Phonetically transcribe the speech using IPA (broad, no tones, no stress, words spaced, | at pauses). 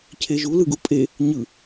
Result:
cʰeʒu lɯɡupʼe | ɲɯ